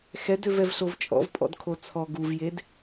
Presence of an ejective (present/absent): present